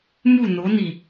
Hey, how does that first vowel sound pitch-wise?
falling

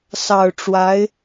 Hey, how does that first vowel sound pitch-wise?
low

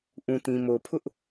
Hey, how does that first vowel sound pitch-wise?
low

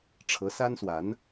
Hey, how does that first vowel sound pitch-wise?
rising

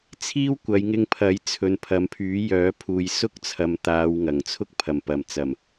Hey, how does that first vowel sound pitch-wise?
high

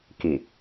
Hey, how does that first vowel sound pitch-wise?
low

